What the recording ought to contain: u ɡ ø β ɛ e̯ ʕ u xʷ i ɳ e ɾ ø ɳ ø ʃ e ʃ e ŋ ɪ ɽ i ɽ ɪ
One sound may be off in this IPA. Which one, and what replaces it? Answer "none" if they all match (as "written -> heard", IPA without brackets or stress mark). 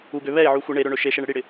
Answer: ŋ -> ɳ